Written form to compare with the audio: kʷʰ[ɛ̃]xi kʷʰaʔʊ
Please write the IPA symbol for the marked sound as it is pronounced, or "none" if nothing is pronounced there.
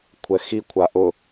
ɛ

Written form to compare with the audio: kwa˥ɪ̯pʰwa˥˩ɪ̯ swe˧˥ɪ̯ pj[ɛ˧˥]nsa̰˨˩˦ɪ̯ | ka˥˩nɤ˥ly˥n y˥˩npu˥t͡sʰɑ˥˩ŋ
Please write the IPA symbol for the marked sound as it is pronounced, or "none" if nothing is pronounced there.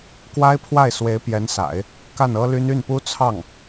ɛ˧˥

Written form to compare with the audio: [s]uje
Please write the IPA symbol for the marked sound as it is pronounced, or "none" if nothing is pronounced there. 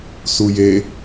s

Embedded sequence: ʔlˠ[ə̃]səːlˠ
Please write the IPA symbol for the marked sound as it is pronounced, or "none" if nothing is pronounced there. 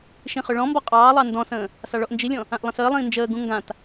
ə̃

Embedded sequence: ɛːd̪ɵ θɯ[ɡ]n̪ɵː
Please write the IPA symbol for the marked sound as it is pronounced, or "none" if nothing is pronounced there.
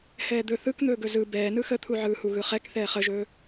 k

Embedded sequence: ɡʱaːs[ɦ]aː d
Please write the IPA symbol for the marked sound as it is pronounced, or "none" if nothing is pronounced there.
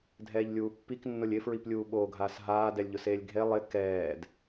ɦ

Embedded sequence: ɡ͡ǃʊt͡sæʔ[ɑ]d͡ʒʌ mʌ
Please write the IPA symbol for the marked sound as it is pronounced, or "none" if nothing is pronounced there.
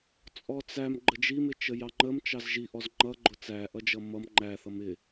ʌ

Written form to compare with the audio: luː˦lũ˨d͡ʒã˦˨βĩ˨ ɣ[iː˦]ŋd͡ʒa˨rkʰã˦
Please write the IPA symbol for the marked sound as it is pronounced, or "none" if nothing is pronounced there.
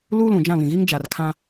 iː˦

